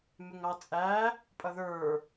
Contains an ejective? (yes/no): yes